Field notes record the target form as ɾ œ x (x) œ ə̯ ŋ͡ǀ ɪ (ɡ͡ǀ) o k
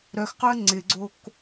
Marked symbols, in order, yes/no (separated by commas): no, yes